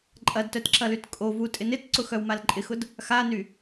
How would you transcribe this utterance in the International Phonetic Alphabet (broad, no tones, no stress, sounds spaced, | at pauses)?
ǃʼ ɐ d t œ t ǁ ɐ l y t kʼ o v u tʼ ɪ n ɪ t ǀ ʊ x œ w m a l ǃʼ ɪ x ʊ d | x a n y